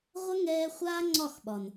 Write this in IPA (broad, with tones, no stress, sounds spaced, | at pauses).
ʁʷ ɐ˦ ŋ ɛː˧ χʷ aː˦ ŋ͡ǀ ɒ˦˨ x ɓ ɒ˨ n